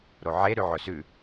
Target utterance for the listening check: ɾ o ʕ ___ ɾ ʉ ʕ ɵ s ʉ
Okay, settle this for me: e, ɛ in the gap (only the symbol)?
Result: e